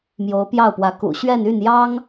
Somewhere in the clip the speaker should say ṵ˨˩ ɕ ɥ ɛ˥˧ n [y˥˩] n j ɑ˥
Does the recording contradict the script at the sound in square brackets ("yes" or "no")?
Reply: no